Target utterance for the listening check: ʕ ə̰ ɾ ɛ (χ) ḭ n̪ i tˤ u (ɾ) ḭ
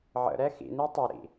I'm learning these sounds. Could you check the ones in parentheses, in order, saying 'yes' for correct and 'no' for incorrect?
no, yes

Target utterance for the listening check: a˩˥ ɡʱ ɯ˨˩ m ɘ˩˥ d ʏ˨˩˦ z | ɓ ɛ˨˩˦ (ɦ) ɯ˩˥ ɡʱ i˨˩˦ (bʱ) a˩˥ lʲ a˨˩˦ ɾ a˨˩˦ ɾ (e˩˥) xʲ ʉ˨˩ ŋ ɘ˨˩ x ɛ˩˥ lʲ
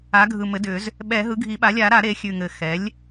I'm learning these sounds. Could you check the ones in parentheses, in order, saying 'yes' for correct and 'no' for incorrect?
yes, no, yes

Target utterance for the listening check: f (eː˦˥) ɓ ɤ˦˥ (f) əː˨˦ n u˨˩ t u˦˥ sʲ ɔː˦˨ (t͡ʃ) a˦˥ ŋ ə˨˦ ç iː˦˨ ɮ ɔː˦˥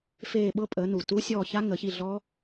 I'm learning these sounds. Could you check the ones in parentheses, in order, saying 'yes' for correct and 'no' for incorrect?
no, no, no

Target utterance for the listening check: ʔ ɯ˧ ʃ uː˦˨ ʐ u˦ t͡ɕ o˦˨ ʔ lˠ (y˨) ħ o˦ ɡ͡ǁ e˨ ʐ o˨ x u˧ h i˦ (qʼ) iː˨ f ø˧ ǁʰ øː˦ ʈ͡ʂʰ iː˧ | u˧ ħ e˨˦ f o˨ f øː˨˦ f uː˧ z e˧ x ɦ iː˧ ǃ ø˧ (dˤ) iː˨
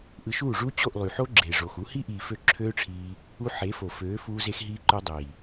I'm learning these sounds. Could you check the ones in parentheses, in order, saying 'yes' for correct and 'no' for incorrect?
yes, no, yes

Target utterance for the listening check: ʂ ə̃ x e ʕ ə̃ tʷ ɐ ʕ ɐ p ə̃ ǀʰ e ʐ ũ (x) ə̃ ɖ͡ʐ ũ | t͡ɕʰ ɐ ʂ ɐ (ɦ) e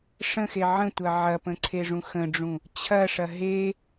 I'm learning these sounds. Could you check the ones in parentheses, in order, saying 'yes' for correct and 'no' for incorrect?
yes, yes

